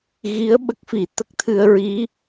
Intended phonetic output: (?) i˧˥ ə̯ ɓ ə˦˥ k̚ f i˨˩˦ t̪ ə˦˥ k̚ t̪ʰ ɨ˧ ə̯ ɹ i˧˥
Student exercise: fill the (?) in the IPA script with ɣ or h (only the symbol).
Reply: ɣ